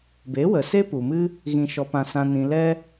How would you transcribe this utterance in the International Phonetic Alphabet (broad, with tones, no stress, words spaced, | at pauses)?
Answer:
be˨˦wə˨se˦ pu˨mɨ˦ | ɣĩ˧ʃɔ˧pã˧ sã˧ nĩ˨lɛ˧